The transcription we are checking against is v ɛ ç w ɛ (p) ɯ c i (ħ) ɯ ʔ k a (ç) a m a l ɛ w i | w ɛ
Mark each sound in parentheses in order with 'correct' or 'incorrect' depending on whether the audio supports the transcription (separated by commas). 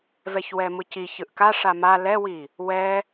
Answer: incorrect, incorrect, incorrect